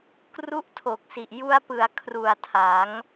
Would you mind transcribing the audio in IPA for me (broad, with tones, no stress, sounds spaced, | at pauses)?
k r u˦˥ ʔ tʰ o˨˩ k̚ s i˨˩ ʔ j u˧ a̯ p ɯ˩˦ a̯ kʰ r u˨˩ a̯ tʰ a˩˦ ŋ